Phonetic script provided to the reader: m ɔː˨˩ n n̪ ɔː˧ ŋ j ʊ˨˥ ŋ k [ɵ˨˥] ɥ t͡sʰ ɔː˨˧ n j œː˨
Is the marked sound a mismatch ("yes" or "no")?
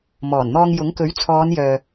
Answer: no